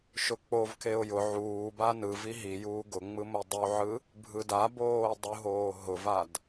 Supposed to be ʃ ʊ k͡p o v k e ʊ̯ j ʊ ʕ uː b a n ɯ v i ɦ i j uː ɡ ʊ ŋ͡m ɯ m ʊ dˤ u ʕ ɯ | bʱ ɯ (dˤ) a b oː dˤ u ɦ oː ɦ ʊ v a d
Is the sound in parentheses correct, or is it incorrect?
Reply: incorrect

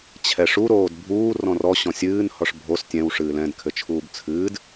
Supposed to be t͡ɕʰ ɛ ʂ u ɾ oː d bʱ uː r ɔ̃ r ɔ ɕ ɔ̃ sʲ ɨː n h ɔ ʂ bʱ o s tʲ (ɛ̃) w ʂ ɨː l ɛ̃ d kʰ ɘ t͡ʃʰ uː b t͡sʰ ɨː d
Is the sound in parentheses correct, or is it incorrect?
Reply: correct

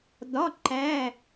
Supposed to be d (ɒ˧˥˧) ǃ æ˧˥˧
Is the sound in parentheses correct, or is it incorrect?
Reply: correct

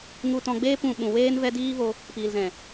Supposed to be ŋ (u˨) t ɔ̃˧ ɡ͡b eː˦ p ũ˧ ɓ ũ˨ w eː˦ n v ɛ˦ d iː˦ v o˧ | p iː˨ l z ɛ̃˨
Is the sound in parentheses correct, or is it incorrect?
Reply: incorrect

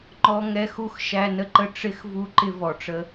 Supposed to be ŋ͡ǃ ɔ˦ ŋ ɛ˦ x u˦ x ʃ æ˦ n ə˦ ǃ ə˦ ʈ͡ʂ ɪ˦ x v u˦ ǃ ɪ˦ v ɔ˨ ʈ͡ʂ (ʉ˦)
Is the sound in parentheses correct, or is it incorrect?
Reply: incorrect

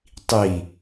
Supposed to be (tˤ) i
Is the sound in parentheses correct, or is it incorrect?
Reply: correct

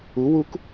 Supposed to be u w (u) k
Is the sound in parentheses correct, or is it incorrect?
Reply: correct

